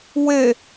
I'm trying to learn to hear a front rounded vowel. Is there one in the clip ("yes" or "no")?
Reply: no